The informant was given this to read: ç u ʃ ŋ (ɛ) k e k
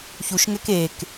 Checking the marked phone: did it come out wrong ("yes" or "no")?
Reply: no